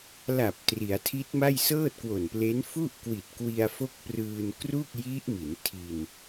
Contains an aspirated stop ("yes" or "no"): yes